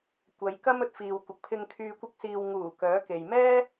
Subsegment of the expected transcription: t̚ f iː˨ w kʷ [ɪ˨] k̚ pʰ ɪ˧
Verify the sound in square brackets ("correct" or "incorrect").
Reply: correct